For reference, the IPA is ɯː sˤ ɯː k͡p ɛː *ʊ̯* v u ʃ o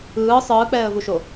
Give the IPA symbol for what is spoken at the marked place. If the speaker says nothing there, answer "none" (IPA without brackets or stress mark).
ə̯